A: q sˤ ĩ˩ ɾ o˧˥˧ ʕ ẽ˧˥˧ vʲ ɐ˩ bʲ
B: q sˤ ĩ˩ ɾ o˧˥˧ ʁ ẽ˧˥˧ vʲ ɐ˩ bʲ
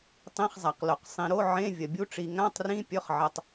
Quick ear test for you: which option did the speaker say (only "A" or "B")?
A